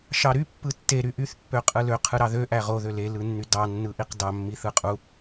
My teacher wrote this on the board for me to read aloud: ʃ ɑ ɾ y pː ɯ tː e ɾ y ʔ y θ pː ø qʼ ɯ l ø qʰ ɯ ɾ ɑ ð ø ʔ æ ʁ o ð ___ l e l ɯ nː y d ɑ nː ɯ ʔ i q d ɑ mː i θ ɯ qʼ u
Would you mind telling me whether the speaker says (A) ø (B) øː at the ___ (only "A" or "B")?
A